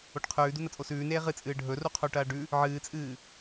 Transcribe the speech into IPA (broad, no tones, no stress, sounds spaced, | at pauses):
o ʈ qʰ ʉː d u n ɐ t͡sʼ o s ʉː n eː ʁ ɨ t͡sʼ ɨː ɖʱ ɵ r u qʰ u ʈ ɐː ɖ ʉ | ʕ ɨː t͡sʼ ɨː